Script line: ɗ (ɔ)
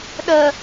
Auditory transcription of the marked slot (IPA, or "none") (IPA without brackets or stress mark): ə